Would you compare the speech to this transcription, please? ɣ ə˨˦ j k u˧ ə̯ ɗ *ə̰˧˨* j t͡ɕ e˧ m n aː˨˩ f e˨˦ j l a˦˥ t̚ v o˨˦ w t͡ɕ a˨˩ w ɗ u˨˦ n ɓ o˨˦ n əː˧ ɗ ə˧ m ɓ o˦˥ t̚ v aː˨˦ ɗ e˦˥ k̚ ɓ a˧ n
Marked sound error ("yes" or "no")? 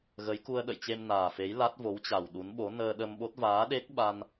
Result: no